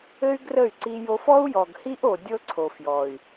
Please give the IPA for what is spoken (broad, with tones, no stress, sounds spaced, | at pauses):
ɘ˦ y̯ ɡ r ə˦˨ y̯ ǀ i˧ j o˧ f ɔ˦ u̯ j ɔ˨ ɡ h i˦ ʔ o˨ dʲ ɤ˦ ǀʰ o˨ f j ɔ˨ y̯